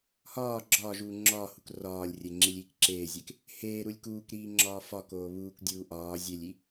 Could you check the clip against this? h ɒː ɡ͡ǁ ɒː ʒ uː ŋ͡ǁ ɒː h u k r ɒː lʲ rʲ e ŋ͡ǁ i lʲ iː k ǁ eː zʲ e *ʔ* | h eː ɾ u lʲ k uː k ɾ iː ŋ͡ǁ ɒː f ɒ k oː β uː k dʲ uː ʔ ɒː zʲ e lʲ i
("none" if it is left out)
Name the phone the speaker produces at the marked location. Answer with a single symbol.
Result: k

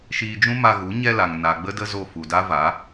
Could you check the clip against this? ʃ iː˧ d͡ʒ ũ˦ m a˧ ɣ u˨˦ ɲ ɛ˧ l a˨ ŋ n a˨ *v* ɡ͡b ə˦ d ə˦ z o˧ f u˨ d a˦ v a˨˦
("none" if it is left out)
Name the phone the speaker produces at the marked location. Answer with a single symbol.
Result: none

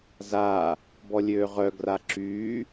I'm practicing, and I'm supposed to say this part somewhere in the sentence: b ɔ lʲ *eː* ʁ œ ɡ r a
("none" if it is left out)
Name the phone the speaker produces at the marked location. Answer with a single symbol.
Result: øː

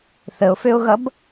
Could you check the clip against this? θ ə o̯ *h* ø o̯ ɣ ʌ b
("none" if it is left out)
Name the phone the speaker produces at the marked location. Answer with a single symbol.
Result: f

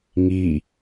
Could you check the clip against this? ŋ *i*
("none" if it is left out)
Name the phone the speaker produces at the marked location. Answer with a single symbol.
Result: i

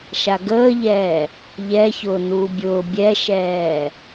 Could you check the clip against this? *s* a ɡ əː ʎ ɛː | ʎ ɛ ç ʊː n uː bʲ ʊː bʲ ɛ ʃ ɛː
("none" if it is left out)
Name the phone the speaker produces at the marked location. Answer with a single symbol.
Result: ʃ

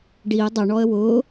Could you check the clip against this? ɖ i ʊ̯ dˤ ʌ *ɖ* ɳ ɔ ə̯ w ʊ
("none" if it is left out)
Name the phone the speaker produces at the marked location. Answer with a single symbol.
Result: none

